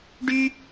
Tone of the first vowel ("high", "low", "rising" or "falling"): high